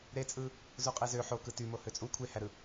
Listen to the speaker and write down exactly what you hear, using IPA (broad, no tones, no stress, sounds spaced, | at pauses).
ɾ e t͡sʼ ɯ | z u qʼ e z ø ħ o k ɯ t y m o h ø t͡sʼ u kʷʰ e h æ ɾ ɯ